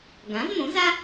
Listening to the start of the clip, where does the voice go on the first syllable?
rising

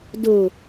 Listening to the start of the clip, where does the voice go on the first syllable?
low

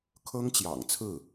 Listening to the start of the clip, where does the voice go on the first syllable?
high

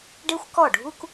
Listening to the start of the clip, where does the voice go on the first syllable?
high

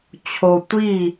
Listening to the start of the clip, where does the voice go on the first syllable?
low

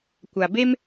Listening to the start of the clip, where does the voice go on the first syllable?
low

